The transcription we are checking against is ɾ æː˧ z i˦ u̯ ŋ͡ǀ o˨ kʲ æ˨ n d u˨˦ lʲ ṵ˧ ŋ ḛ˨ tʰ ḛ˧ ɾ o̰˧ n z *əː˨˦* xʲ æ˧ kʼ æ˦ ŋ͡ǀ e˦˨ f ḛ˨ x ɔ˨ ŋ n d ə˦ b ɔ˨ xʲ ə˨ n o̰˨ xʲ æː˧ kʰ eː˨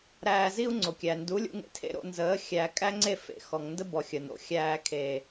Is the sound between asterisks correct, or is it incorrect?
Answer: correct